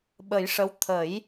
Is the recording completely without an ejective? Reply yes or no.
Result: yes